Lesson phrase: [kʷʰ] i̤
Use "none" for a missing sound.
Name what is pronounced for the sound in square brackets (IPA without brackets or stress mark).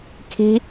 kʰ